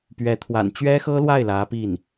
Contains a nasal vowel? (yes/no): no